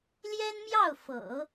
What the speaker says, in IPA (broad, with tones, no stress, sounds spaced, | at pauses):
l j ɛ˥ n m j ɑ˥˩ ʊ̯ f ɤ̰˨˩˦